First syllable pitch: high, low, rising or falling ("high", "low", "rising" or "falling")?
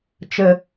low